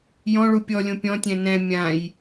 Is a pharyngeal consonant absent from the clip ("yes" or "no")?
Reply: yes